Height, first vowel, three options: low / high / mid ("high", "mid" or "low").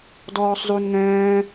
mid